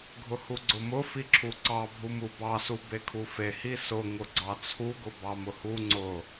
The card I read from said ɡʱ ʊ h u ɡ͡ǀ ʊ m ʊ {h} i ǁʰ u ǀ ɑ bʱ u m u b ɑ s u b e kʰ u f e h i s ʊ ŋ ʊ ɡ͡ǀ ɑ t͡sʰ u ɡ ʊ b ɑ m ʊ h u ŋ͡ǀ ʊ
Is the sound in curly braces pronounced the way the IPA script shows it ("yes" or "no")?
no